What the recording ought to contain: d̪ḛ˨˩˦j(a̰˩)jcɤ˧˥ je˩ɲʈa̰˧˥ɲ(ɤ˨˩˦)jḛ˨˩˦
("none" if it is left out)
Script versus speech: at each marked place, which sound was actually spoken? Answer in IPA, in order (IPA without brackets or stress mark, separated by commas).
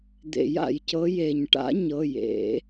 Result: a̰˩, ɤ˩˧˩